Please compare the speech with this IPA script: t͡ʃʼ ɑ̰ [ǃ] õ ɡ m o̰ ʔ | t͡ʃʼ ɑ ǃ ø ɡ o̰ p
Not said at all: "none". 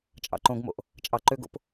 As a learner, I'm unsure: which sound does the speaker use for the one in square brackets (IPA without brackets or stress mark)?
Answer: ǃ